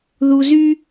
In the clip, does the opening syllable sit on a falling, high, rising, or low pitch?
high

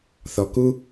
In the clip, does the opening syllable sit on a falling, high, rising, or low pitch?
low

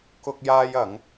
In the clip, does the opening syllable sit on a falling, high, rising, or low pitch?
high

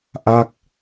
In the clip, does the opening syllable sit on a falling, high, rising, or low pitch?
falling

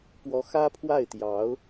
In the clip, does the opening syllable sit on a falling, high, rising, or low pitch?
rising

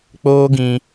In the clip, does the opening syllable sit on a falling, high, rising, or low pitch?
high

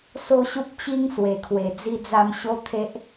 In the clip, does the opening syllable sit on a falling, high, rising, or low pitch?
falling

